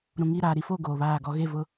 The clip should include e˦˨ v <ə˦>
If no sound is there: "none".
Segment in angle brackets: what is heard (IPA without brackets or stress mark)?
ʊ˦